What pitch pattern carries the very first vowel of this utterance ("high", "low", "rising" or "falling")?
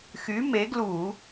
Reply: rising